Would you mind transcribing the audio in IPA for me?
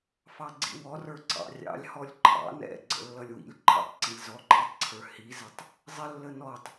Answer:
fɑɡ͡ǀḭwɔrə˞ ǀɑ̰rʲɑ̰lʲ hɔlʲǃʰɑ̰ nɛ̰ɡ͡ǀə̰ lːʌlʲwḭlʲ ǃʰə̰tˤ ǀilʲzɔǃʰʌtˤǀʰə˞ hizɪtˤ | zˤɪlːə nɔtˤ

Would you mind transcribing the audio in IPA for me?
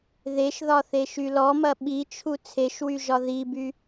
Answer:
ðeʃðɒθeʃy lɔmɐ ɓit͡ʃʰu t͡sʰeʃwyʒɒ ðiby

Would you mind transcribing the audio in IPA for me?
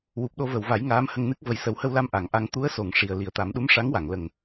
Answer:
wu˨˩p̚ɗo˧və˨˩˨wva˨˩˦j ŋaː˧˥mhə˧ŋnɨ˦˥k̚ və˨˩jsə˨˩˦whə˧wla˧m ʔa˨˩˨ŋʔa˧ŋ t̪u˧˥ə̯so˨˩˨ŋ ʂi˨˩ə̯ li˨˩˨ə̯t̪a˨˩˦mɗu˧˥m ʂa˧˥ŋwa˨˩˨ŋ lə˨˩ŋ

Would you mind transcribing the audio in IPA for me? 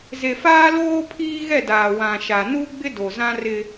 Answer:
ze˨faː˦ loː˦pʰiː˦ɣɛ˦˨daː˨ wã˨ʃa˨ nu˦ɡ͡bɪ˦do˨zã˦ rɪ˦

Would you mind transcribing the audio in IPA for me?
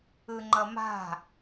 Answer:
ɯŋ͡ǃʌma̤

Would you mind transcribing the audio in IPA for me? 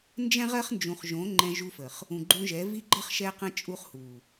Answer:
nd͡ʒɛ̃˦ʁɜ˦χnd͡ʒũ˨χʒõ˨˦ ŋ͡ǃɛ̃˧ʒu˧fə˨χ | ũ˨ɡ͡ǃũ˧ʒɛ˨˦ vi˧ɡ͡ǃɜ˧χ ʃɛ˧qə̃˧ t͡ʃʼu˧χhu˨

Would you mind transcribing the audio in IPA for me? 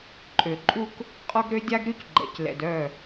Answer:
ǃʼø˨ ǃʼu˦k | qʼɔ˦ɡɾø˦ dʲa˦ɡɾy˦c ɡ͡ǃɛ̰˨clɛ̰˨dœ˦˨

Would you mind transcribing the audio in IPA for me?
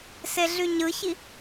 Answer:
seɮyɲɯçi

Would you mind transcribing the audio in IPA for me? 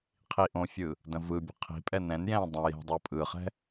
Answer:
qʰiʔõfʲɯ | də̃vɯbʲə̤ qʰi̤pʼɛ nɛ̃njɛ̃ː dˤə̃ jɛ̤dˤəː pʼɯχɛ̤

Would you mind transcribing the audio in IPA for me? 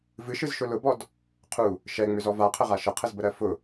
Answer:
vɨʃɨzʃʊ lʊbɔd | qʰu | ʃɛŋ͡mʏzɔ vaqʰəʁa ʃəqʰəzbəɾɜ fʊ

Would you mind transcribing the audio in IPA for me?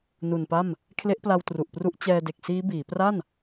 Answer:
nu˨˩npa˥˩m | kʰle˦˥ʔpla˧w tru˨˩ʔpru˦˥ʔ t͡ɕɛː˧de˨˩k̚siː˦˥biː˩˦ pra˥˩n

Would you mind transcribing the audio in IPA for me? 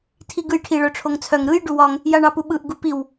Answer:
tʰiɡɯjʈʰi ɭœʈ͡ʂʰoŋt͡sʰœŋ ɾɯj ɖuwɒŋ | jaɳɑpuɓɯʔ ɡupiw

